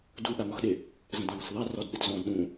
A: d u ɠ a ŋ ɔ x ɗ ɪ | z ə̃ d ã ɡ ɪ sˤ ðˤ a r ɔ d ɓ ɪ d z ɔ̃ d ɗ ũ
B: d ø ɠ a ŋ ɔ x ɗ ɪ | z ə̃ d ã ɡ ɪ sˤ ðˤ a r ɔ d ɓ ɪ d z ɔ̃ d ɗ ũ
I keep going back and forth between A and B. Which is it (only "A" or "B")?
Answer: A